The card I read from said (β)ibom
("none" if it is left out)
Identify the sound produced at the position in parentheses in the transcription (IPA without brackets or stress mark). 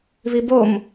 β